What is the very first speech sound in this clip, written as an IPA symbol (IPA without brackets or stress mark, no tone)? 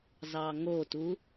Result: z